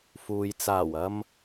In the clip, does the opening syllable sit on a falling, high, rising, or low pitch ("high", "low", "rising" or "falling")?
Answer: low